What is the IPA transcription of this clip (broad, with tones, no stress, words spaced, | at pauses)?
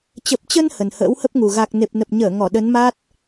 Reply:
t͡ɕə˨˩p̚t͡ɕə˧n hə˨˩nhə̰ː˧˥whə˦˥p̚ŋu˨˩ ɣa˨˩k̚ ne˨˩p̚nə˨˩p̚ɲəː˧˩ ŋɔ˧˩ɗə˨˦nma˦˥t̚